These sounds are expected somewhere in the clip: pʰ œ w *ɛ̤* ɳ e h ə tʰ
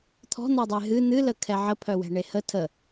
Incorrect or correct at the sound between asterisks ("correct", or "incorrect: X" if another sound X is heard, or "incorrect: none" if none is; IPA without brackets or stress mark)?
correct